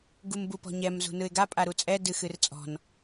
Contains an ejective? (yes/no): yes